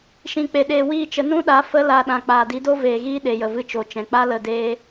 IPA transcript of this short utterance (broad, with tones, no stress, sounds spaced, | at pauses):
ʃ ĩ˨ k͡p e˨ ɗ eː˨ w iː˦˨ t͡ʃ ə˧ n ũ˦ ɗ a˨˦ f ə˦ l a˧ ɗ ã˨ k͡p aː˨ d i˨˦ d o˦ v eː˨ ɣ iː˦ ɗ e˨ j ə˨ v ɨ˧ t͡ʃ o˨ t͡ʃ ɛ̃˨ k͡p a˦ l ə˦˨ d eː˦